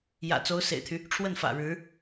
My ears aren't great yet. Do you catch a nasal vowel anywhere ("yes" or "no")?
no